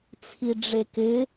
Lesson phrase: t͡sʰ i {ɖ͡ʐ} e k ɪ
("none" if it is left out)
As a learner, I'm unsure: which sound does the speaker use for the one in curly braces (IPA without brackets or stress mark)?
ɖ͡ʐ